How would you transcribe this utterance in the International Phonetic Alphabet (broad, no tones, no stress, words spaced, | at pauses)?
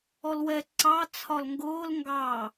ɔlwɛ ǀɑ t͡sʰɒlŋɡʊːl ŋɡɑ